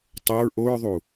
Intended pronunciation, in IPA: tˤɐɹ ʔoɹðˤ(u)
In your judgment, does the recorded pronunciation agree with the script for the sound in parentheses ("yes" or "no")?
yes